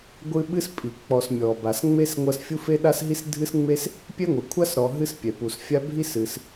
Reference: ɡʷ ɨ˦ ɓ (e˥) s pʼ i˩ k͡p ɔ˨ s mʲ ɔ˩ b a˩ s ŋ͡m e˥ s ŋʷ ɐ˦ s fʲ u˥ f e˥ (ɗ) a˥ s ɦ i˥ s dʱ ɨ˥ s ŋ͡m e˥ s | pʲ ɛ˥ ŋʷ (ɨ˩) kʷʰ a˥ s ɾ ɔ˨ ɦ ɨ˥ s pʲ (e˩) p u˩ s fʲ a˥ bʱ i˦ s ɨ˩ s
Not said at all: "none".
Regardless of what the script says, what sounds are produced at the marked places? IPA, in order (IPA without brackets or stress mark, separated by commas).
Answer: ɨ˥, ɗ, ɨ˩, ɛ˩